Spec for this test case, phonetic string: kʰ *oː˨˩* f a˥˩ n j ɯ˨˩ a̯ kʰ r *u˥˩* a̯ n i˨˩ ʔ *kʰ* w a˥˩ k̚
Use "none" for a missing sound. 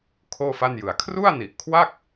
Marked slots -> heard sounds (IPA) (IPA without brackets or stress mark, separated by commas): oː˥˩, u˥˩, kʰ